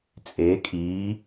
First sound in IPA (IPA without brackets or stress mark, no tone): t͡sʼ